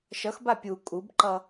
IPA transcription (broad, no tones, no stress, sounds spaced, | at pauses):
ʃ ʌ x b a pʲ u kʼ u b ǃ ʌ